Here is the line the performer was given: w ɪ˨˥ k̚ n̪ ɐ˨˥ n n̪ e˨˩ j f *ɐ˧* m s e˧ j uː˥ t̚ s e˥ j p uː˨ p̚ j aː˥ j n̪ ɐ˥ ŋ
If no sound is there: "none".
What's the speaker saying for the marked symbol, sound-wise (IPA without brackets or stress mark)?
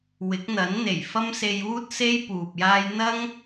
ɐ˥